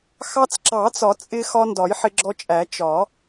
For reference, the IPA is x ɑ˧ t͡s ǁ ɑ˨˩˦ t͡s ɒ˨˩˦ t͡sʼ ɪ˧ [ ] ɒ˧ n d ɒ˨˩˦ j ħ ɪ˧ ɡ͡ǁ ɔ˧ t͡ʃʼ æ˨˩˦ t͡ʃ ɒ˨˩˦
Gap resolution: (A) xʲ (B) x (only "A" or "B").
B